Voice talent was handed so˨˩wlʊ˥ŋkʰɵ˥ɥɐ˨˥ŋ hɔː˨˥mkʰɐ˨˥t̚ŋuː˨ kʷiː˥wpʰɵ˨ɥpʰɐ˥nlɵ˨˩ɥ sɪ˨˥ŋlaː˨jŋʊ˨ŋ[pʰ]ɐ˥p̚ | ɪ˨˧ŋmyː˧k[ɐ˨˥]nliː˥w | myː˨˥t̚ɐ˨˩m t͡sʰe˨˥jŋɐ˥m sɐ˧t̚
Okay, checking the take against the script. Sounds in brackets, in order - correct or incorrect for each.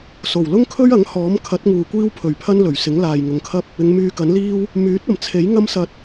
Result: incorrect: kʰ, correct

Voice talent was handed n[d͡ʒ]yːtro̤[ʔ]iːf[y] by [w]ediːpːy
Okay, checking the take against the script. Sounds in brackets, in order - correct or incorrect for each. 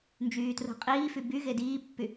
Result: correct, incorrect: qʼ, correct, incorrect: ɣ

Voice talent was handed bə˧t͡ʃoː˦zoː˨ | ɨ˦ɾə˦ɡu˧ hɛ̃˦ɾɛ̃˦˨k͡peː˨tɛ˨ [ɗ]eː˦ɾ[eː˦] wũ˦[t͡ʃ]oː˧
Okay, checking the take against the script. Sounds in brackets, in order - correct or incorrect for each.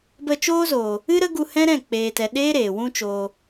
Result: correct, incorrect: eː˨, correct

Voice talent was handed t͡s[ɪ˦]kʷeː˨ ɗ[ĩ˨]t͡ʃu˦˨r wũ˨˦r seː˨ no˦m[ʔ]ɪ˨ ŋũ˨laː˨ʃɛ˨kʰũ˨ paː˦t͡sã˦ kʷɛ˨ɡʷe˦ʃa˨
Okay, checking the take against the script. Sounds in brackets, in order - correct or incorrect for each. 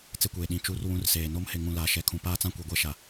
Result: incorrect: ɪ˦˨, correct, incorrect: h

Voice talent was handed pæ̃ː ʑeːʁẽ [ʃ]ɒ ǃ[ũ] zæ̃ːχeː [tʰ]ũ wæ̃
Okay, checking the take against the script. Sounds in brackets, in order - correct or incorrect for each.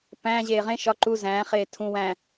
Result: correct, incorrect: u, correct

